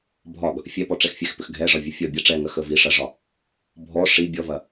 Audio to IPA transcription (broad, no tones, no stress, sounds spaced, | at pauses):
bʱ ɒ ɡ | fʲ ɛ p ɔ ʈ͡ʂ ɛ x fʲ ɛ x p ʏ x ɡʱ ɛ ʐ ɒ vʲ ə fʲ ɔ bʲ ɐ ʈ͡ʂ ɛ ŋ ɐ x ə v i ʂ ɐ ʐ ɒ | bʱ ɔ ʂ i bʲ ɔ v ɐ